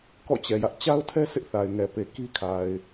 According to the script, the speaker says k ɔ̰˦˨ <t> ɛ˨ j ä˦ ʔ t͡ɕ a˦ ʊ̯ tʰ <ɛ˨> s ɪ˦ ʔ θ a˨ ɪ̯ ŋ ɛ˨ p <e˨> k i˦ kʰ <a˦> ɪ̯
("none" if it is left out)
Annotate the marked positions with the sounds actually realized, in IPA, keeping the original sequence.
t͡ɕ, ɛ˦, e˨, a˨

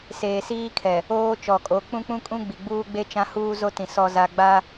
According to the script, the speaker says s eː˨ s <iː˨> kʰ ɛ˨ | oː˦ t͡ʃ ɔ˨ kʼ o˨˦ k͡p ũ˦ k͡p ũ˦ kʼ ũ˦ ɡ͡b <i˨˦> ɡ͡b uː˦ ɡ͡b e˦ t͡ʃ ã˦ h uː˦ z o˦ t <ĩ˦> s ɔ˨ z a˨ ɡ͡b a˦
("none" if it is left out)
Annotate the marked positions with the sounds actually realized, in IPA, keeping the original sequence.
iː˦, i˨, ĩ˨

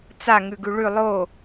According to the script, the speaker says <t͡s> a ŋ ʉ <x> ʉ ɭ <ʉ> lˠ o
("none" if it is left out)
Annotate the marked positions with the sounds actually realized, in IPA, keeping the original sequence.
t͡s, ɡ, ʉ

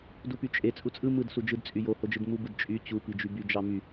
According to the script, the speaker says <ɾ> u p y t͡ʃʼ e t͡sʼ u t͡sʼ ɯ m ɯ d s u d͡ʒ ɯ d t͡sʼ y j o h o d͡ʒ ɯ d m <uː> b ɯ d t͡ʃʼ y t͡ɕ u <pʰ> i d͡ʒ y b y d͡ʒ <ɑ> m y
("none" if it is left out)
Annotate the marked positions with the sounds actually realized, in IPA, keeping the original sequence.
d, u, p, ɑ

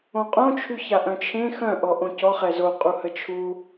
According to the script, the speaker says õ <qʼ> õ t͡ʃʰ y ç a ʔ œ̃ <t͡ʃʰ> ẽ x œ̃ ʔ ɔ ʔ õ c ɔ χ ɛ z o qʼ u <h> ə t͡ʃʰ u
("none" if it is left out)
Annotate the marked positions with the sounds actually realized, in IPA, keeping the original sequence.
qʼ, t͡ʃʰ, h

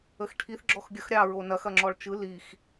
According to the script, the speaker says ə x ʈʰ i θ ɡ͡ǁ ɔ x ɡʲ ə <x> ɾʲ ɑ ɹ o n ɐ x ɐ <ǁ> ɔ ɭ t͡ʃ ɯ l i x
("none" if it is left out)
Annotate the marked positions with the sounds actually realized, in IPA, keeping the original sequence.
x, ŋ͡ǁ

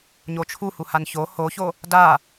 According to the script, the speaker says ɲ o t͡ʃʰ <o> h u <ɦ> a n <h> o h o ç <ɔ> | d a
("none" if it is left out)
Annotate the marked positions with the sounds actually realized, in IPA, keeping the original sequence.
u, h, ç, o

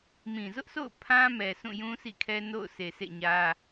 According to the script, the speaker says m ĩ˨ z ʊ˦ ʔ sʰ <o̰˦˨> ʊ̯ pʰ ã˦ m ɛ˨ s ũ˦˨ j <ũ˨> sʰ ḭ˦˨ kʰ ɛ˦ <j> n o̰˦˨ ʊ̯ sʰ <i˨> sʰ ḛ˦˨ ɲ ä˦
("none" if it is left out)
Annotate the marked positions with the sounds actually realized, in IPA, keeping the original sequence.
o̰˦˨, ũ˦, none, e˨

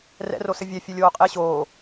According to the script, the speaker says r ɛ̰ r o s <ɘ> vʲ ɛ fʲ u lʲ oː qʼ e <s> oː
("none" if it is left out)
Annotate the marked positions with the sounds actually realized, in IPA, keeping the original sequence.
ɘ, ɕ

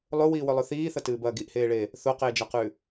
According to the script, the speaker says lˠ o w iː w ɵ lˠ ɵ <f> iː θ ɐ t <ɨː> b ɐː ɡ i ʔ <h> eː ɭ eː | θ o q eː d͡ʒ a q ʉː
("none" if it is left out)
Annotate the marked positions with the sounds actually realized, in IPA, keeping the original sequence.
θ, ɨː, h

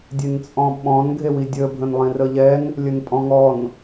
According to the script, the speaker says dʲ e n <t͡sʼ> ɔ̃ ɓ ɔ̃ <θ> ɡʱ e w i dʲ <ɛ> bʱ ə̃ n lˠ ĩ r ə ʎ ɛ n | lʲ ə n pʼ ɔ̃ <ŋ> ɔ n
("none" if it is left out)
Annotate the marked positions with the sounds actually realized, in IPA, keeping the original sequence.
t͡sʼ, n, ə, ŋ

